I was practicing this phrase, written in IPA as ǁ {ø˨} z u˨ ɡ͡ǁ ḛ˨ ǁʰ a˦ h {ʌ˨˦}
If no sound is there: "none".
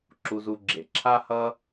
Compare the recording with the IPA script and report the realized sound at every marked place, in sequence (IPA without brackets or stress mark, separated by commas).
u˨, ʌ˦